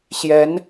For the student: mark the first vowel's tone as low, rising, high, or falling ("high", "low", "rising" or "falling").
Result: rising